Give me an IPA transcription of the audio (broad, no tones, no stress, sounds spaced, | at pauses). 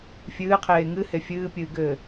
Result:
fʲ ɨː qʰ eː ŋ ɨ h e fʲ ɨː pʲ ɨː ɡ ɘː